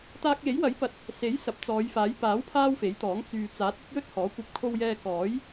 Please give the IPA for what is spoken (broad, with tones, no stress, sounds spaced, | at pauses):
t̪ aː˧ k̚ j e˨˥ j w ɐ˨˥ j p ɐ˨˥ t̚ | s e˨˥ j s ɐ˨˥ p̚ t͡s ɔː˨˧ j f aː˨˥ j p aː˨˥ w pʰ aː˥ w f e˨˥ j t̪ ɔː˨˥ ŋ t͡s yː˨ t͡s aː˨˥ t̚ ɵ˥ t̚ j ɵ˥ t̚ h ɔː˨˥ kʷ ɐ˧ p̚ kʰ o˧ w j ɛː˧ k ɔː˨˥ j